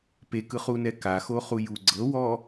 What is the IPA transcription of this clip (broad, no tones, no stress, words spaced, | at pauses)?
pekɯχunɛ kaxoχuju ɡ͡ǀɤwɔ